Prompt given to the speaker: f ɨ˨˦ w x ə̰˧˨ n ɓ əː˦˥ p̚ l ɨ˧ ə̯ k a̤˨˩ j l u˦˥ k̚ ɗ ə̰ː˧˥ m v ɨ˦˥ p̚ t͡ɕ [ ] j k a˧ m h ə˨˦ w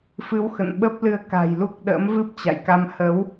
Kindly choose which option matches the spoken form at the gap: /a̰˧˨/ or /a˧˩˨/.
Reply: a̰˧˨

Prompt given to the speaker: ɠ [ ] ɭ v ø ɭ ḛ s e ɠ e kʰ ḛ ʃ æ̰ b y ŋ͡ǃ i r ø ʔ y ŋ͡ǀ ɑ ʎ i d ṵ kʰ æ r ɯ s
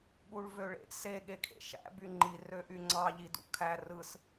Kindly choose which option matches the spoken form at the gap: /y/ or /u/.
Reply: u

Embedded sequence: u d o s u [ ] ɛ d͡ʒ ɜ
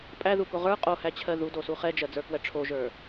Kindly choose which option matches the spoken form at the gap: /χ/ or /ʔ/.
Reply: χ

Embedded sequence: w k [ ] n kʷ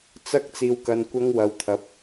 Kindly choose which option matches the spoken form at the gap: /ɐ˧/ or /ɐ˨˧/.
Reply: ɐ˧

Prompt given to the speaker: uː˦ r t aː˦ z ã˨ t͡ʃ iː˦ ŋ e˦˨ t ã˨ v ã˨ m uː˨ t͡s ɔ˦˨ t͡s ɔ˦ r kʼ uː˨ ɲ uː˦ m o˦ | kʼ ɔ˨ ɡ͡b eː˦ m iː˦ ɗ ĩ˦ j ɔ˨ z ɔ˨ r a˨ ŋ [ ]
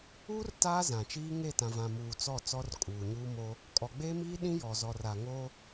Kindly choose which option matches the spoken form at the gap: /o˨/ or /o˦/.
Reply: o˦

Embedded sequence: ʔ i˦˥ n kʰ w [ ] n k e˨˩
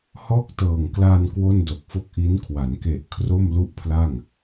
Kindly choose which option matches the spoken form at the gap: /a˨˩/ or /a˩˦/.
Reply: a˩˦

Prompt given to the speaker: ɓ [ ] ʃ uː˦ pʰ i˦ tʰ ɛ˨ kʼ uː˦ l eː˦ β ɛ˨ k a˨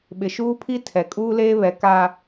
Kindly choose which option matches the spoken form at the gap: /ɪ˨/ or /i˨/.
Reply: ɪ˨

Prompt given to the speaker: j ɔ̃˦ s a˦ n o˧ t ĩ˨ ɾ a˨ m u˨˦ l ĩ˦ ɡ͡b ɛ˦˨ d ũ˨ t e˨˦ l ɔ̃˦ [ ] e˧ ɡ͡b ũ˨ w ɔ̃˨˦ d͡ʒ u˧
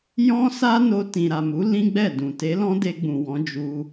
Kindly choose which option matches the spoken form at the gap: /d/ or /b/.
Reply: d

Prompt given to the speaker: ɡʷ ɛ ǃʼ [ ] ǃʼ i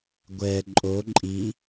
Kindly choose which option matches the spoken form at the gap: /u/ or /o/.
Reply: o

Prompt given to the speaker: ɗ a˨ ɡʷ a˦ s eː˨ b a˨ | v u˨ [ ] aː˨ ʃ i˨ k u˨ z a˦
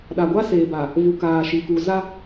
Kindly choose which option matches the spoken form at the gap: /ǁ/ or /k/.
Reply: k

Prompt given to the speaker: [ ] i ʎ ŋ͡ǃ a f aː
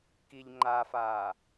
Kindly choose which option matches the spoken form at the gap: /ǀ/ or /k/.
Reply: k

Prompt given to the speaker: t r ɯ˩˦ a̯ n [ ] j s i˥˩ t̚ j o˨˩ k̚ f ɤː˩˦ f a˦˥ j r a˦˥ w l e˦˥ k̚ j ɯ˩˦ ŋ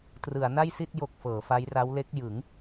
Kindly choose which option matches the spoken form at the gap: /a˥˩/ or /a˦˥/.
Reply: a˥˩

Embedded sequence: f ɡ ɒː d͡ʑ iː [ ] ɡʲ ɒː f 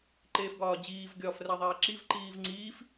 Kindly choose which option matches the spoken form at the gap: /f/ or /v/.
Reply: v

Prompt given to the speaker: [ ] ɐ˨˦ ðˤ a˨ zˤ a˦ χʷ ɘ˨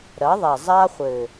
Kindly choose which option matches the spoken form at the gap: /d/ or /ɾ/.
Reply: ɾ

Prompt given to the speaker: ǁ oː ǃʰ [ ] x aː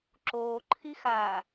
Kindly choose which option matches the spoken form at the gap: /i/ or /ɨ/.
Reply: i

